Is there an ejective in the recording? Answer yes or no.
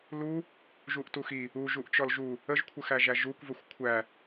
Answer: no